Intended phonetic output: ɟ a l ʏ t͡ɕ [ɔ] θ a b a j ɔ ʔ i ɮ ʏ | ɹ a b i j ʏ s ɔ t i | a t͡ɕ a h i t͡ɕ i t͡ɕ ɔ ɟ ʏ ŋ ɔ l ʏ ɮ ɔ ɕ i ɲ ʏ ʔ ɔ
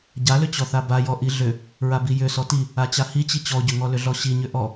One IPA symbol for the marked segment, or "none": ɔ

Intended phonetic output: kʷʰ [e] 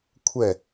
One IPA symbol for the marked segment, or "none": ɛ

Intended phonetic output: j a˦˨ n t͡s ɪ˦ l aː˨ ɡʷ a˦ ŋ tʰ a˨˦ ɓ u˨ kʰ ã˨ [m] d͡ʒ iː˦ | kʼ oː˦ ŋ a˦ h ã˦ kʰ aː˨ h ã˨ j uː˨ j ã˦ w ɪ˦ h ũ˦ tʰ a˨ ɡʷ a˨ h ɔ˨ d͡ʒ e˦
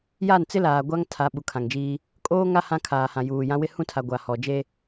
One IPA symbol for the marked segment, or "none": ŋ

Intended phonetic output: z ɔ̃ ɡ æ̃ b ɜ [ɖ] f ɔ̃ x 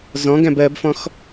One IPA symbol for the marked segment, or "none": b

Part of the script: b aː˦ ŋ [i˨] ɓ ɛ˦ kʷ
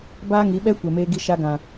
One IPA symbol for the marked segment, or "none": i˨˦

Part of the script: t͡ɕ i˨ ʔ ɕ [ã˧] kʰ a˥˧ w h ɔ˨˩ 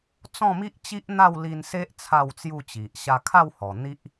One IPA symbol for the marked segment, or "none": a˧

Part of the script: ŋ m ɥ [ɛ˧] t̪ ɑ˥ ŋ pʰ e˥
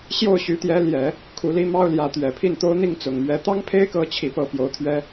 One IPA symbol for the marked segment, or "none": ɛ˧˥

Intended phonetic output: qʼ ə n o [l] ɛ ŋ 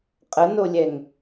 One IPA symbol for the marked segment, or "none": lʲ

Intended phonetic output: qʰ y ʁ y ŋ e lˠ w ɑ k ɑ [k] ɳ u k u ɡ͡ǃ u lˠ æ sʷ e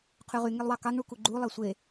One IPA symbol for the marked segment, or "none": ŋ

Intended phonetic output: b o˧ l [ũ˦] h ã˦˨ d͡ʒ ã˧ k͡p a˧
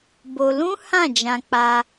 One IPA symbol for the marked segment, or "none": ũ˦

